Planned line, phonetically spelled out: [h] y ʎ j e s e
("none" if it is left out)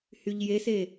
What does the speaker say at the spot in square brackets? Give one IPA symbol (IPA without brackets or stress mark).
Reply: h